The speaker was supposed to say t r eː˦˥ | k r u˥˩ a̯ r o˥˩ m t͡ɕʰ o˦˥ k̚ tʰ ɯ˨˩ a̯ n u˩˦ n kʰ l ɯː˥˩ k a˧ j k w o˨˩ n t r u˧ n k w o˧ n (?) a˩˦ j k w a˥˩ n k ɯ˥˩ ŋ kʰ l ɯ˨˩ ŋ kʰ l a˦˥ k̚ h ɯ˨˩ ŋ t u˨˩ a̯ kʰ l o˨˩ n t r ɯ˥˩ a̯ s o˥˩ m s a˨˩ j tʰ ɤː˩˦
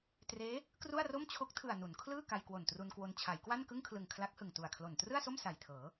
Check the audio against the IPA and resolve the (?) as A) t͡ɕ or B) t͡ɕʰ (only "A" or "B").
B